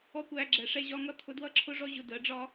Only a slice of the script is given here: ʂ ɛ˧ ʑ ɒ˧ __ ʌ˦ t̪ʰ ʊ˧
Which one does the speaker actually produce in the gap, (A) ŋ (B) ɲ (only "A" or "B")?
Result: A